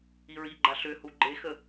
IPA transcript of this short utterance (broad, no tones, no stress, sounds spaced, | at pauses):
i ɹ i ɡ͡ǃ a ɬ ʏ h u ɡ͡ǃ e x ə